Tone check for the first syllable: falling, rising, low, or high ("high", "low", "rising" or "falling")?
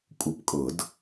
rising